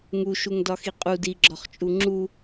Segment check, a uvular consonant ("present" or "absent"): present